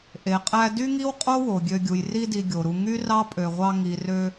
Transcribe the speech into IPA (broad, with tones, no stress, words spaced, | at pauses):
ʔe˩qʼæ˦ dy˥ŋi˥wqʼo˥wo˩ ɡʲø˨ɡʲu˩j ri˦di˨ɡʲo˩ɾu˨ ŋy˥rɑ˥pʼø˨ʁʷɑ˦ ŋi˨rø˦